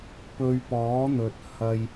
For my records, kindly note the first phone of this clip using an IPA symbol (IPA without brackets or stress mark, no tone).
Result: p